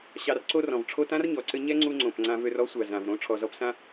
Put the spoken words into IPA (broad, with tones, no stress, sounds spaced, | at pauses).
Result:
ɕ ɑ˧ r ǀ o˦ r ɔ̃˨ v ʈ͡ʂʰ o˧ t ã˦ r ɲ ɔ˨ ǀ ɘ˧ ɲ ɛ˦ ŋ͡ǀ u˧ ŋ͡ǀ õ˨ p ŋ͡ǀ ã˧ v ø˧ r ɔ˦ sʷ a˨ z ã˨ v ɾ õ˨˦ ʈ͡ʂʰ ɔ˨ z ɔ˧ p s ã˦